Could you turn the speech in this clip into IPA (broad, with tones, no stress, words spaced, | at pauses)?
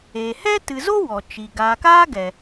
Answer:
e˨ hɛ˦ tɨ˨zo˦ wɔ˨t͡ʃi˨ ɡaː˨kaː˦ ɡɛ˨